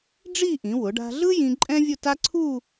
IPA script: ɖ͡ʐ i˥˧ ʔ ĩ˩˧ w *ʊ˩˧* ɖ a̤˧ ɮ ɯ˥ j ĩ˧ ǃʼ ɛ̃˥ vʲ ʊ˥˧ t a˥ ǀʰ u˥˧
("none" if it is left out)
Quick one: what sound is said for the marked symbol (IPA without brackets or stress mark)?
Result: ʊ˩˧